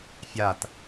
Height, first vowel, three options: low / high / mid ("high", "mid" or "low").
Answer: low